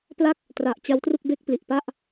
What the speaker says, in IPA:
p l a˥˩ k̚ | t r a˨˩ ʔ t͡ɕ a˦˥ w t r u˥˩ k̚ b e˥˩ k̚ p l i˨˩ ʔ p a˥˩ ʔ

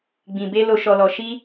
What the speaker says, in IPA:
ɡ͡b ĩ˨ b e˧ l o˨ ʃ ɔ˨ l ɔ˨ ʃ i˧

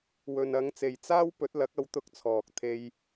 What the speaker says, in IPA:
w ɵ˨ n ɐ˨˧ ŋ t͡s e˨ j t͡s aː˥ w p ɵ˨˥ t̚ l ɐ˨˥ k̚ ɐ˧ w t̪ ʊ˧ k̚ t͡sʰ ɔː˨ k̚ t̪ʰ e˧ j

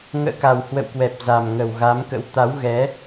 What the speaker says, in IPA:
ŋ ə̰ː˧˨ k a˨˩ w h w ə̰˧˨ w k w ɛ˨˩ p̚ z a˨˩ m ŋ ə˨˩ w ɣ a˨˦ m k ə̰˧˥ w t̪ a˨˦ w ɣ ɛ˨˦

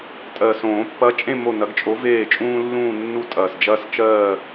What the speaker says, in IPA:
tʼ ɜ˨˩ s õː˨˩˦ pː ɐ˨˥ t͡ʃʼ ẽ˦˨ m o˦˨ n ɐ˨˥ ɡ t͡ʃʼ o˨˥ v eː˦˨ t͡ʃʼ ũː˦ lː ũː˦˨ nː u˦˨ tʼ ɐː˨˩ s d͡ʒ ɐː˦ s t͡ʃ ɜː˦˨

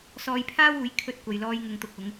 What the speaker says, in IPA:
s ɔː˧ j pʰ aː˥ w uː˨˥ j kʰ ɵ˧ t̚ kʷ ɐ˨ j l ɔː˧ j ŋ ʊ˨ ŋ t̪ ʊ˨ k̚ ʊ˨˧ ŋ

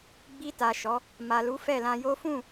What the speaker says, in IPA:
ɡ͡b i˧ t a˨ ʃ ɔ˨˦ | m a˨ l u˨˦ f ɛ˦˨ l ã˧ j o˦ f ũ˦˨

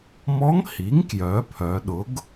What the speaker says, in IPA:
m ɔ˧˥ ŋ h i˩˥ ŋ k j œ˩˧ pʰ œ˩˧ ɗ ʊ˩˥ ɡ

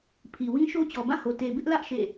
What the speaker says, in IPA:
pʰ i˨ w ĩ˦ ʃ o˦ t͡ɕ ɔ˨ b ã˦˨ h o˨ t e˨ b ɪ˦ ʔ l ä˦ ʔ ʃ ḛ˦˨

